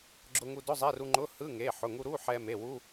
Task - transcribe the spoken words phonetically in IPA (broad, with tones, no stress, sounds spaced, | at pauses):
ɡ͡ǁ ʊ˧ ŋ u˧ d ʊ˧˥˧ zˤ ɛ˧˥˧ r u˧ ŋ͡ǃ ʊ˧˥˧ h ɯ˧˥˧ ŋ e˩˧˩ ħ ʊ˩˧˩ ŋ u˧ ɾ u˧˥˧ ħ ɛ˧ m e˩˧˩ w u˧˥˧